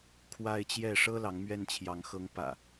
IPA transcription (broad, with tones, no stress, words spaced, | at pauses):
kʰwa˦ɪ̯t͡ɕjɛ˥˨ ʂɤ˦ lɑ˨˦ŋmɥɛ˦nt͡ɕʰjɑ˨˦ŋ xɤ˨˦ŋ pä̰˨˩